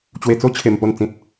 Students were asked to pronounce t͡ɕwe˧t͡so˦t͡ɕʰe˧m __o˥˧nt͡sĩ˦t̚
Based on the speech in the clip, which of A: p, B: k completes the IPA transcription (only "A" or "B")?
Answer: A